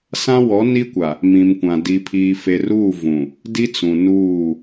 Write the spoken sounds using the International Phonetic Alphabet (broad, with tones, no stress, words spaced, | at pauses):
sã˦wɔ˨˦ni˦kʷa˨ | mĩ˨mkʷã˨ di˨pʰi˨ fe˨ruː˦˨vũ˨ | di˦ t͡sũ˨nuː˦˨